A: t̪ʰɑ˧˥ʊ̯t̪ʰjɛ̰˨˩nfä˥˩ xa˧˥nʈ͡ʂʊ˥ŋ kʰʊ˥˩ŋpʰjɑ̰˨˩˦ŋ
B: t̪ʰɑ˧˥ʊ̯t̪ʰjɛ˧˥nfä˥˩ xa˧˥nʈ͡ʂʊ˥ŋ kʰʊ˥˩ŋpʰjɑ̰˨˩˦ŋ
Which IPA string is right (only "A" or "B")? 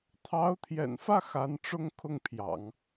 A